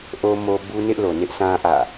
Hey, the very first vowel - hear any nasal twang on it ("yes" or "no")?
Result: no